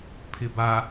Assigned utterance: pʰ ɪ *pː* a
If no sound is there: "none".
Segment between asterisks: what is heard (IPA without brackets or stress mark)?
b